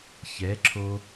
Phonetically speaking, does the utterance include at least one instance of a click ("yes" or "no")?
yes